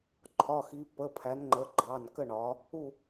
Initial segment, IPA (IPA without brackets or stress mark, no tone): ǃʰ